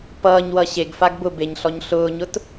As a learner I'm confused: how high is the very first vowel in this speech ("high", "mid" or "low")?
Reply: mid